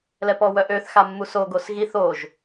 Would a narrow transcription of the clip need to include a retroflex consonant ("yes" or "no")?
no